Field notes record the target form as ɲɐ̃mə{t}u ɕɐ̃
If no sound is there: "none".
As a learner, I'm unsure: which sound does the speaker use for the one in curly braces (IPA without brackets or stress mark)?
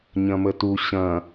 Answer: t